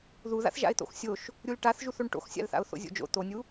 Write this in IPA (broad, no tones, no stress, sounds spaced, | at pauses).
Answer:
ð u ð a̰ θ ʒ a̰ ɪ̯ t̪ o̰ x sʲ o ʃ | ɾʲ u l ʈ a θ ʒ u θ o ɳ ʈ o̰ x sʲ a̰ l θ a̰ ʊ̯ θ o̰ zʲ o̰ d͡ʒ o̰ t̪ o nʲ u